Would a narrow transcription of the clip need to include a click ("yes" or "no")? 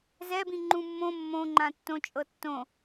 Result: yes